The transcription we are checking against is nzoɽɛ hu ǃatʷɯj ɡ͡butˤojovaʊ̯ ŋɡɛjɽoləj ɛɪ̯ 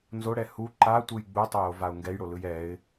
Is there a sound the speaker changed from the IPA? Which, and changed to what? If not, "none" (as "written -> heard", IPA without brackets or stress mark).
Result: ə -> ɯ